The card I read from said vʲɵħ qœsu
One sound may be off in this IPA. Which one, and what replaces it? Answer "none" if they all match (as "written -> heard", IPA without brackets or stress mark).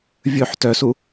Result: q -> t